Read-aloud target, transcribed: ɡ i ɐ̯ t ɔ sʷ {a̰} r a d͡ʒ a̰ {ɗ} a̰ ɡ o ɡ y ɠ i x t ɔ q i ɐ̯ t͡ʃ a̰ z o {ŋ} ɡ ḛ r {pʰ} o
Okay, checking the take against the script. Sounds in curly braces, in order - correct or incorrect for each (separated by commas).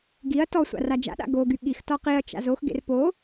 correct, correct, incorrect, incorrect